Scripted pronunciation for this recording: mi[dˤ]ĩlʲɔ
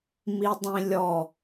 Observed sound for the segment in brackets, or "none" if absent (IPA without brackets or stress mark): dˤ